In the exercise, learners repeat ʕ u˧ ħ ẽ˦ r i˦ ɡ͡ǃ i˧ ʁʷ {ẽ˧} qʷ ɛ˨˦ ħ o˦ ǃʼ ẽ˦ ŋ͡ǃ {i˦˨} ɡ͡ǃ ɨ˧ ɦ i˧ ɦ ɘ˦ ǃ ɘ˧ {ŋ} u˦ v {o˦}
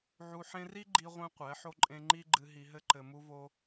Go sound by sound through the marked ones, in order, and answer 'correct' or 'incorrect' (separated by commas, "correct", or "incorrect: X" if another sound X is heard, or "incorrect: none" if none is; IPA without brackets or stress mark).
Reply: correct, incorrect: i˦, incorrect: m, correct